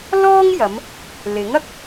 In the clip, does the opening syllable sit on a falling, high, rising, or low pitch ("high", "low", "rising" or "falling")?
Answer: high